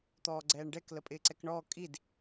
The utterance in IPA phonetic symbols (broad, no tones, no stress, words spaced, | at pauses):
t̪ɔːɡ͡ǀɛːɳɖɛk ləpʼɪːǀɛkɳɔː kʼid